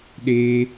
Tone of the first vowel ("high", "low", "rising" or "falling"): high